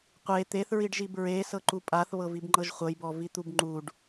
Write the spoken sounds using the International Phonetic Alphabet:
qʷe t̪eθɹiɖʒib ɹesɤǃu pʼaθβɤvibŋ͡ǃɤʒ χʷɤjbɔvit̪ub ŋ͡ǃuɖ

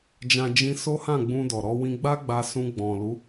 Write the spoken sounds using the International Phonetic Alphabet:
d͡ʒã˦ d͡ʒĩ˧ so˦hã˦˨ɡ͡bũ˧ dɔ˨ɾɔ˧wĩ˧ ɡ͡ba˦ ɡ͡ba˧sũ˧ ɡ͡bɔ̃˨ lu˨˦

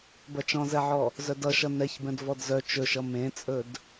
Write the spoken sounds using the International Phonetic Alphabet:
bɐt͡ʃɔ̃zɛʕɔ | zœdʌʃʌ nɛçbɛ̃d vɔdzœ t͡ʃɵʃʌ mẽt͡sʼɵd

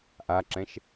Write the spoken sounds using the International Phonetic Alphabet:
ʔaǁɛ̃ʃ

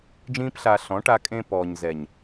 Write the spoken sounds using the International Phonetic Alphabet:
d͡ʒĩː˦pɬa˧ ɬɔ̃˨˦ʈa˧kʼẽ˧ pɔː˨ɲzɛ˨ɲ

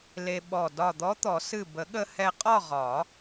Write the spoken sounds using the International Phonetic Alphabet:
le˧ɓɔ˧˩ dɒ˧˩d̪ɔ˧˥t̪ɔ˨˩˦ sɨ˧˩bə˨˩˦ɠə˧ hɛ˧qʼɒ˥˨ ʁɒ˨˩˦

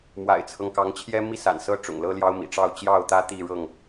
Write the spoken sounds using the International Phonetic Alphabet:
mwa̰˨˩ɪ̯t͡sʰɤ˦ŋkɑ˨˦ŋt͡ɕʰjɛ˦ mi˦sa̰˨˩nsɤ˦ ʈ͡ʂʊ̰˨˩ŋlɤ˦ljɑ˦ʊ̯ mḭ˨˩ʈ͡ʂɑ˥˨ʊ̯ t͡ɕjɑ˥˨ʊ̯t̪ä˦ t̪i˥˨ɻɤ˥˨ŋ

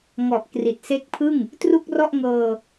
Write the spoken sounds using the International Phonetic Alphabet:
ŋɔ˨˩ʔ kri˨˩t̚se˦˥k̚pʰɯ˥˩ŋ | tru˥˩k̚rɔ˥˩ʔŋɤː˧

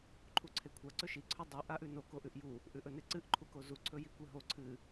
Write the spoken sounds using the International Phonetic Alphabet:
ǃʰuǀʰekʷʰa ǀɵʃi ǀʰɵdˤu ʔaʔʉno koʔʉʔju | ʔʉʔɵneǀɨʔ ǃʰukozu ǀʰɵjikʷeɦo ǀʰɨ

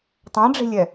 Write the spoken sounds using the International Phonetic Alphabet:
tˤãɖ͡ʐe̤lʲɛ

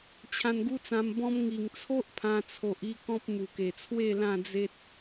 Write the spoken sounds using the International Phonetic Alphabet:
t͡ɕʰã˧nɡu˦t͡sã˧mbɔ̃˦m ŋi˨˩ŋt͡sʰo˦ʔ pʰã˧t͡sʰo˨ʔ i˥˧kɔ̃˦p̚ mu˨˩ke˨˩t͡sʰwe˥˧ lã˥˧d͡ze˦t̚

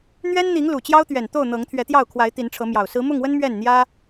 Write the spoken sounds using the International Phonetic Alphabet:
n̪ɥɛ˦nn̪i˨˦ŋ lu˨˩t͡ɕjɑ˦ʊ̯t̪ɥɛ˨˩nt̪o˥˨ʊ̯ n̪ɤ˨˦ŋt̪ʰɥɛ˨˦t̪jɑ˥˨ʊ̯kʰwa˨˦ɪ̯ t̪i˨˦nʈ͡ʂʰɤ˨˦mjɑ˨˩ʊ̯ sɹ̩˨˦mʊ˥˨ŋwə˦n mɥɛ˥˨nn̪jä˦

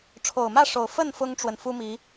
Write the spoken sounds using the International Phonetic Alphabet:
ʈ͡ʂʰo˨˩ʊ̯mä˥˨ʂo˨˩ʊ̯fə˥˨n fʊ˦ŋʈ͡ʂwə˨n fu˦mi˨˦

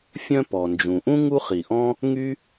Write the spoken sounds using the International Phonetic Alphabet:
fʲœ̃˥pɔ˩nd͡ʒũ˩ ʔũ˥ ŋu˥χi˩ʔɔ̃˥ | ŋy˥

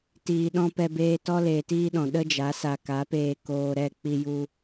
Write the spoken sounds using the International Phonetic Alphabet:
tiː˨ ɗɔ̃˧pɛ˧beː˧ tɔ˦leː˨tiː˦ɗɔ̃˨ ɗə˦d͡ʒa˨˦ sa˨ka˨˦ peː˧koː˧ɾɛ˦˨ k͡pi˧ju˧

